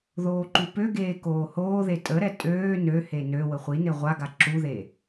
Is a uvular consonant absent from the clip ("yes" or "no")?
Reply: no